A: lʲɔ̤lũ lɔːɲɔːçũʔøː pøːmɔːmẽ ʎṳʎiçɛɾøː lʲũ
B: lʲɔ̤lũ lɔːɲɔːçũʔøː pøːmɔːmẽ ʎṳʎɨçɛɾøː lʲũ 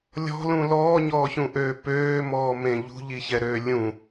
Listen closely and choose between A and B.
A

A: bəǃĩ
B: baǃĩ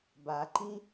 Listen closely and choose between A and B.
B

